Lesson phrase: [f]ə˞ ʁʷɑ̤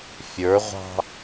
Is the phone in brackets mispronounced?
yes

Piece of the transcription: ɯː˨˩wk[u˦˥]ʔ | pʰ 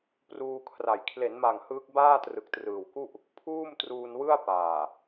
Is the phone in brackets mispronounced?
yes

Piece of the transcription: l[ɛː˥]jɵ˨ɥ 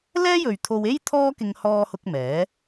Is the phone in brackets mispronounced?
no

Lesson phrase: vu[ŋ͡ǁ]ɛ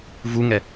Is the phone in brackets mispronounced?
yes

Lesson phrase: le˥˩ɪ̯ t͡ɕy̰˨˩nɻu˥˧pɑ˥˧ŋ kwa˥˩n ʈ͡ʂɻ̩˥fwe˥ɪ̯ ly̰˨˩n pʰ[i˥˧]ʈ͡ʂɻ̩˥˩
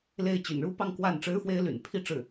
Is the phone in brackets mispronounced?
no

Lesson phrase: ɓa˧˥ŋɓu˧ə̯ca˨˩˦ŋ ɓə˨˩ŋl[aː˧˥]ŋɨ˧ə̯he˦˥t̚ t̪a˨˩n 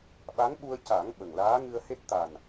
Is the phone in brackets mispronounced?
no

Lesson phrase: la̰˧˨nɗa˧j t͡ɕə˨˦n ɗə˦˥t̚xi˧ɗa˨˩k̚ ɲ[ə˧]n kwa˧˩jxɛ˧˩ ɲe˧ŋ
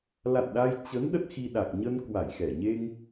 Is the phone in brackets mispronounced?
no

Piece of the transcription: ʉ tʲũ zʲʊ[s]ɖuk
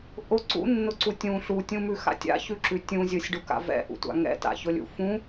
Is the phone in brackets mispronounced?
yes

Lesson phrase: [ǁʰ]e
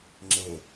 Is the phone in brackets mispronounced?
yes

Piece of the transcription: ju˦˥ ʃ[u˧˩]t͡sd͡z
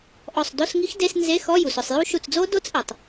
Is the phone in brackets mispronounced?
no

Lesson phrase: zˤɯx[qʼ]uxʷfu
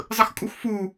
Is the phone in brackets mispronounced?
yes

